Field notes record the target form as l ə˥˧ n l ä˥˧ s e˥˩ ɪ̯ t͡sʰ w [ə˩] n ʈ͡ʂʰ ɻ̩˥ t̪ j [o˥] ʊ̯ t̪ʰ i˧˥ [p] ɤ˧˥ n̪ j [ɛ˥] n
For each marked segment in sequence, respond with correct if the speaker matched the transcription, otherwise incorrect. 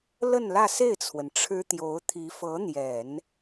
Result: correct, incorrect, incorrect, incorrect

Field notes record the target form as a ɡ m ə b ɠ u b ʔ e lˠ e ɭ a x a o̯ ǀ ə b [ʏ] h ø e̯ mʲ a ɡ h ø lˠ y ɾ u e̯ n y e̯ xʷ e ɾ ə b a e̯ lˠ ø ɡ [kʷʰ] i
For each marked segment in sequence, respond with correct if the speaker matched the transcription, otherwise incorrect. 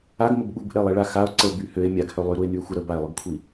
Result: incorrect, correct

